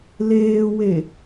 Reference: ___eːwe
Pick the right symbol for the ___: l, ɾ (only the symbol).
l